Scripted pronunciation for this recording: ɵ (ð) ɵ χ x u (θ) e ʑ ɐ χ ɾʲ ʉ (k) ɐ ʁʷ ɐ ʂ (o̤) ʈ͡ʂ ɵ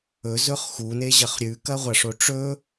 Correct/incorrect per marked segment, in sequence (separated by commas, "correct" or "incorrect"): incorrect, incorrect, correct, incorrect